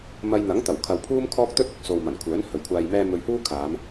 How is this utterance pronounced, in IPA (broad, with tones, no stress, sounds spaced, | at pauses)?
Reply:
m ɐ˧ j n̪ ɐ˨˥ ŋ t̪ ɐ˨˩ w kʰ ɐ˨ w pʰ uː˥ m kʰ ɔː˥ k̚ t̪ ɵ˥ t̚ ʊ˨ k̚ s o˨ w m ɐ˨˩ n kʷʰ œː˨˥ n h ɵ˨˩ ɥ kʷʰ aː˨ j m ɛː˧ m ɵ˧ ɥ h uː˥ kʰ aː˨˧ m